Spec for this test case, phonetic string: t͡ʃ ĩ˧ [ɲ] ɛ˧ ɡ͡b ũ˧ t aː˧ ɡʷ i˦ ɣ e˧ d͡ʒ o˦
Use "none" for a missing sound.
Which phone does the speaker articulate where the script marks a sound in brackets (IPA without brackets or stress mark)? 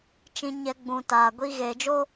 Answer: ɲ